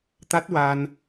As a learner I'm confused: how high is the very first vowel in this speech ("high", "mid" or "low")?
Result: low